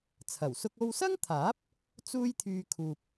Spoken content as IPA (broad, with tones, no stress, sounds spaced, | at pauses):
t͡sʰ ɐ˨˩ w s ʊ˥ k̚ o˧ w s ɐ˥ ŋ t̪ʰ aː˨˥ p̚ | t͡s uː˥ j t̪ʰ yː˧ kʰ uː˨ p̚